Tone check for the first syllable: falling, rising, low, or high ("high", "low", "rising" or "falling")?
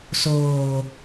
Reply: low